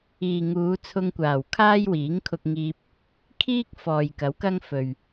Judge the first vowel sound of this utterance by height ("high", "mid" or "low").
high